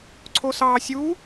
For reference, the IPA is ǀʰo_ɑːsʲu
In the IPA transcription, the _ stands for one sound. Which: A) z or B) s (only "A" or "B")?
B